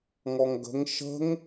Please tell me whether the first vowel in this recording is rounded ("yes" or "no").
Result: yes